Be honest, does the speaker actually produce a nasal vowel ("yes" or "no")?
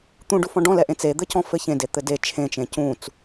yes